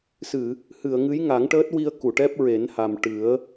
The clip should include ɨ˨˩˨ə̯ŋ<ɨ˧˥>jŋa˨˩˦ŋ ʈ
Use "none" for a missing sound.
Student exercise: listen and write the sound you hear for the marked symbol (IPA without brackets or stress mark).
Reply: ɨ˧˥